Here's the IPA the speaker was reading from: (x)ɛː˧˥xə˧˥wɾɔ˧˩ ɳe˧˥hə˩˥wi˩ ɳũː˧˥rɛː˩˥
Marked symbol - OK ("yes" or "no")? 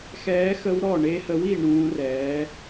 yes